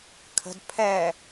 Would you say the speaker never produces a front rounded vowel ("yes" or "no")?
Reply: yes